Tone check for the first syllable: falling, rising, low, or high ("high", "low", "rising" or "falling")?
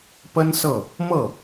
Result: high